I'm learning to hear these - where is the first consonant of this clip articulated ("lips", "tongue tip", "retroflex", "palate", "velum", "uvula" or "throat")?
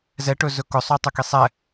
tongue tip